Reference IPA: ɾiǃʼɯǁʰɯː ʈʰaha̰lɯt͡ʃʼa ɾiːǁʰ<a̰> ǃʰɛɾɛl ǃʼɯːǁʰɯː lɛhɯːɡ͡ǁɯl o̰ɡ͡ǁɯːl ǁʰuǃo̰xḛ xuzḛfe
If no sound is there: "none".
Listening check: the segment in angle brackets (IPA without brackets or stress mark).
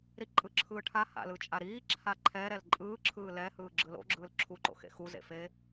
a